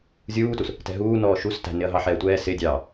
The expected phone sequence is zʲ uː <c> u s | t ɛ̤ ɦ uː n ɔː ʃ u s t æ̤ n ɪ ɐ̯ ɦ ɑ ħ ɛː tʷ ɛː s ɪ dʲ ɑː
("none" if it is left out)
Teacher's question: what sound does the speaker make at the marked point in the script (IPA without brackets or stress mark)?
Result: t